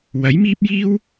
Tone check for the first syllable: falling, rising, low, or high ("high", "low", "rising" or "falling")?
rising